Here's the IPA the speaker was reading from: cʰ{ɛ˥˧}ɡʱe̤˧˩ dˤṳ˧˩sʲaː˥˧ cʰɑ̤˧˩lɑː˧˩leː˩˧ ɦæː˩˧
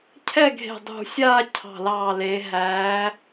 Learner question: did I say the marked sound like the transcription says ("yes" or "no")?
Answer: yes